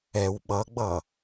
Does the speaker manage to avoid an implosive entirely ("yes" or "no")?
no